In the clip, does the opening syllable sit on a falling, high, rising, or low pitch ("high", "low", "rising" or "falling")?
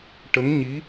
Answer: rising